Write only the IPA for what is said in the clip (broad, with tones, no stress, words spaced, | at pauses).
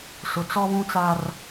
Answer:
sʊ˨t͡sɔ˦βũ˦t͡sa˦r